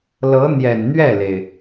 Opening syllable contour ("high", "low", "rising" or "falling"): rising